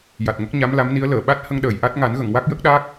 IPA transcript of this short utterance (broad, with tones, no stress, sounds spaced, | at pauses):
j a˨˩ t̚ ŋ ə˦˥ k̚ ɲ a˧˥ m l a˧˥ m n i˧˥ ə̯ l əː˨˩˨ ɓ a˦˥ t̚ h ə˧ ŋ ɗ əː˨˩˨ j ʔ a˦˥ t̚ ŋ a˨˩˦ n ɣ ə˨˩˨ ŋ w a˦˥ k̚ j ə˦˥ k̚ ɗ aː˦˥ k̚